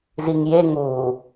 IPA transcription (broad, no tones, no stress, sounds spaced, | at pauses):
z i ŋ j e ŋ uː